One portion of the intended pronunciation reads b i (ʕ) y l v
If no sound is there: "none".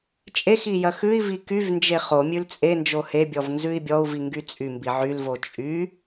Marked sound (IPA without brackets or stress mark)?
ʕ